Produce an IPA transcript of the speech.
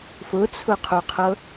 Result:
fʊt͡sʰʊqʰoqʰɤ

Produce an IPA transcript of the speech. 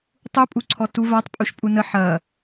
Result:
tˤupʼuǀʰɔ tu vatˤpʼuʃ pʼunə ħɐ

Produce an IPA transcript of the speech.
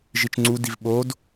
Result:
ʒit͡ʃŋ͡ǀudiv ɓod

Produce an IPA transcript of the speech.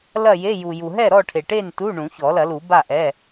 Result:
lɐ˥˨je˧˥˧ju˨ ju˨ɦɛ˥˨ɾɔ˥˨ʈʰe˨ ʈe˥˨ntu˧˥˧ ɳũ˨˩˦çɔ˨˩˦lɐ˨˩˦lu˨˩˦ ba˥˨ʔɛ˧˥˧

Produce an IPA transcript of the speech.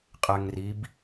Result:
qʼɛŋrib

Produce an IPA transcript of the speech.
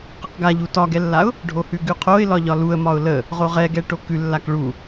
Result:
qeqɡaʎu tɒɡɛlːaʊ̯ | ɖʱohʉɡʉqʰoɪ̯ lɒʎɒluə̯mɒʊ̯ lə | ʁoʁɛɡɛ ʈokʉ lːakɭu

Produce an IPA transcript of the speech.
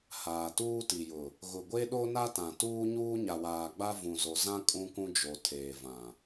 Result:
haː˨tuː˦ti˨jʊ˨ | ɣʊ˨ɡʷe˦ɗo˦ na˦tã˨tuː˦ ɲuː˦ɲa˨waː˨ɡ͡ba˦ vũ˨zo˨ zã˦ kʼũ˦kũ˦d͡ʒo˨ tʰeː˨vã˨

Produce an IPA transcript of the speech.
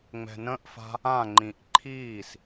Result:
ŋ͡mɛ̤nə̃ʔfa̤ | ãŋ͡ǃĩʔ ǃʰiːs

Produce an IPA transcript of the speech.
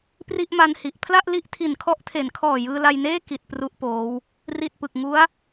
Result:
pri˥˩ʔma˧nhi˨˩ʔ pʰla˥˩ʔli˦˥ʔ tʰi˨˩nkʰɔ˦˥ʔtʰe˩˦nkʰɔː˨˩ jɯː˧la˧jneː˥˩ ki˨˩t̚ pru˥˩ʔpoː˦˥w | ri˨˩t̚pɯ˨˩k̚ŋu˦˥a̯

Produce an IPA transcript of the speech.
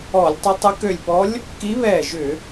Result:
ɔ˧˩˧lʲ tˤʊ˧˥tˤə˧˥ kø˧˩lʲpɔ˧˥lʲ | ki˧˥βɛː˧˩ʒʏ˧˩˧

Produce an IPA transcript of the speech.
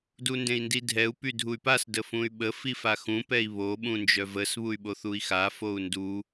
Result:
dundẽi̯ndidʱɛu̯ pydʱuy̯pas dəfũy̯ɓə fifaxũ pɛi̯βo ɓũnd͡ʒœvəs βuy̯ɓoθui̯xa fou̯ndu

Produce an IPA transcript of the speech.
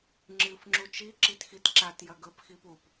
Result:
ŋ͡ǁɨf ŋ͡ǁut͡ʃi ǁitxitǁat jɐɡɵp xipup

